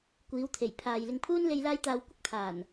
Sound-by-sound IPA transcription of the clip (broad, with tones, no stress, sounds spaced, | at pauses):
kʷ iː˨˧ w t̪ʰ e˨˩ j pʰ aː˨ j l ɪ˨ ŋ pʰ uː˧ n l e˧ j l aː˧ j t̪ aː˨ w kʷ ɪ˥ k̚ t̪ʰ aː˨˩ n